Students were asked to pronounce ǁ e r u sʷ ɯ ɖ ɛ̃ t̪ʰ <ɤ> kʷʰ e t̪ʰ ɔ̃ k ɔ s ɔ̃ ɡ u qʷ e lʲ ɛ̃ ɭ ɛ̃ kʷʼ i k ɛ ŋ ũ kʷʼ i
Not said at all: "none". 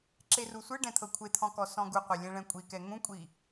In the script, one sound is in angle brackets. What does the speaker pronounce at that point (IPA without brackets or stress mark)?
ɤ